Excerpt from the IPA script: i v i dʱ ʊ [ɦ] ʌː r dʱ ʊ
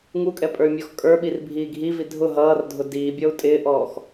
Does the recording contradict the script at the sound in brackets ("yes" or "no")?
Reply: no